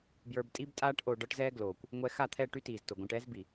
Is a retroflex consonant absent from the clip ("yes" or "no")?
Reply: no